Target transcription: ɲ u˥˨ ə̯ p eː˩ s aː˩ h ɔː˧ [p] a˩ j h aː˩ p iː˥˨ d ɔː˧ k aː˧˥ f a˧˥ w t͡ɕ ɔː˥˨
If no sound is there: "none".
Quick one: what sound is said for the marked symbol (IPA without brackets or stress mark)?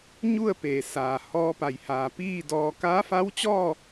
p